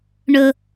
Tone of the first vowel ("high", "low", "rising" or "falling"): low